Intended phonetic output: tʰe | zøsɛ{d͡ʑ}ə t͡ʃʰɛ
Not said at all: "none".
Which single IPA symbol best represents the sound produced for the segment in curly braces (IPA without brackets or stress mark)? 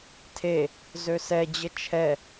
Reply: d͡ʑ